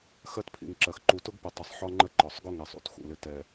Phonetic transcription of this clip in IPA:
xɜ˦tpʰḭ˨ŋǁɜ˨x ǃu˨tʊ˦ɡpə˨ tˤɪ˨sˤħɒ˦ ŋ͡ǃə˦ǃɒ˨sˤ ɡʊ˦ŋɛ˨sˤ ṵ˦txṵ˨lɪ˦ tɛ˨

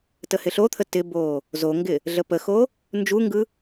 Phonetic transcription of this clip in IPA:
təhɪɬot̪ʰə tɪbo | zoŋɡɪ | ɮəpəxo | nd͡ʒuŋɡɯ

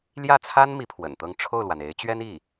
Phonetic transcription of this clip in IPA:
ljä˥˩t͡sʰa˥n mi˧˥pʰwə̰˨˩nt̪ɤ˥˧ŋ ʈ͡ʂʰo˥˩ʊ̯lwa˩n e˧˥ɪ̯t͡ɕɥɛ˥n i˥˩

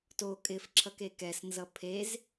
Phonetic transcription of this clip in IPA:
to kʼɪfǁʰʌke kɛsnzʌ pʰez

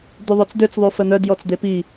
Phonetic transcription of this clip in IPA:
d̪yðˤøt͡sdøt͡s ðˤufən̪œd jɔt͡sd̪epi

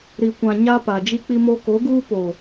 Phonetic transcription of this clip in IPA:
ɾi˨kʷã˨ ɲa˦ pa˨d͡ʒi˦k͡pi˦mo˦ ko˨˦ɡuː˦poː˨

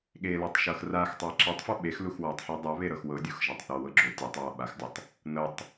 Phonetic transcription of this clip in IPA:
ɠelɤtˤ ʃɤxraxtˤa ǁetˤfɔ ɓexlux wɔtˤħɔ dˤaβe ɾɤxwɤdʲux ʒatˤθɔwɤ ɡ͡ǁo tʲetˤwa ɓaxdʲatˤ | nɤtˤ

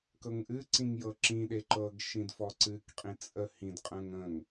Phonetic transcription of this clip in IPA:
kɤŋʔɨǀĩŋ jɤǁĩɗe ǃɤɡ ʃĩdfɔǀɨkqʼĩ t͡sʼə hĩdqʼə̃ːŋ ə̃ŋ

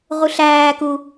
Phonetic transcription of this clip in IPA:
ʁuɬæːku

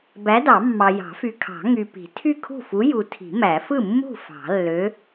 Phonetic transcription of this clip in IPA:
bæ˨˥dɑ˨˩˦mːɑ˨ jɑ̤˨˩˦fy˨kʰɑ̤˨˩˦ ŋy˨pi̤˨˩˦ tʰy˥˩kʰṳ˥˩fu˨˥ ju˨tʰi̤˨˩˦ mæ˨˩˦ fɯ˥˩mːṳ˥˩ fɑ̤˨˩˦lːø˨˥

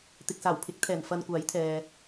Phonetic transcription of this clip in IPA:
t̪ɪ˨k̚saː˨˩w pʰɪ˨˥k̚t̪ʰɛː˨˩n fɐ˧nkʷaː˨˥jt̪ʰɛː˨

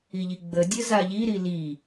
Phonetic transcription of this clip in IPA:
iʎiɡ͡bədʲə zaʎiɾi li

